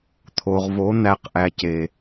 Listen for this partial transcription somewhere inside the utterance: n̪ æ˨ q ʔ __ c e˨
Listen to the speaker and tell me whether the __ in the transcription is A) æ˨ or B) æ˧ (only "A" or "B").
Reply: A